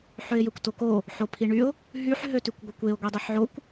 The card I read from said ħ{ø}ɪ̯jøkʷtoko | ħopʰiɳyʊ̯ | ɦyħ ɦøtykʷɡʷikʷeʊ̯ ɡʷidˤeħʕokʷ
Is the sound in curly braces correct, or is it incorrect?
correct